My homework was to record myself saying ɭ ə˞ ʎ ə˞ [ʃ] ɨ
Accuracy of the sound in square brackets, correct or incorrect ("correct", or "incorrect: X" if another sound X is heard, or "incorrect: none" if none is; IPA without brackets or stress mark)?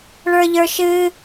correct